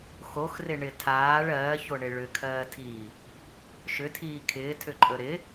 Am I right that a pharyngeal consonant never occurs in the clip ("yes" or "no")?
yes